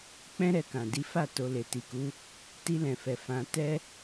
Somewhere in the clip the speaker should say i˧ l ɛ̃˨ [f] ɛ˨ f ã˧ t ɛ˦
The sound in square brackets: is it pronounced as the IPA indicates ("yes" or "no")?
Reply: yes